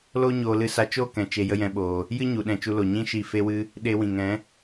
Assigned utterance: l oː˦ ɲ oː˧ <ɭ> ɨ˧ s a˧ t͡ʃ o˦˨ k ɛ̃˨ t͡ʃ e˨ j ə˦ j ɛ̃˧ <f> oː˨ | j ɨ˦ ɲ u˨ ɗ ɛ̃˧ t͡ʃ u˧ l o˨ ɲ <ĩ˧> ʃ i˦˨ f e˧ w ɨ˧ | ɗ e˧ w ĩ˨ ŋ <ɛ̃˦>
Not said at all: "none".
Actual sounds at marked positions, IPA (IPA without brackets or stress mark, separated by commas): l, ɓ, ĩ˦, ɛ̃˨˦